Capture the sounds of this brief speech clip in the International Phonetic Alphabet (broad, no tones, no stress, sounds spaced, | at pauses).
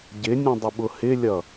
ɟ ɪ nʲ ũ dˤ ɪ ɓ ʊ h ɪ lʲ ʌ